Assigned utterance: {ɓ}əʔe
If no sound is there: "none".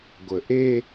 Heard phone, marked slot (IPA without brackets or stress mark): ɡʷ